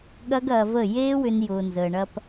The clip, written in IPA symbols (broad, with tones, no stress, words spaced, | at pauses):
ɠɐ˦ɡɐː˧və˦˨ jeː˦wʏ˧n jʊː˨nzəː˨ɳɐ˧p